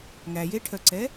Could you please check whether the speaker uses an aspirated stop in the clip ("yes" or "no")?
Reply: yes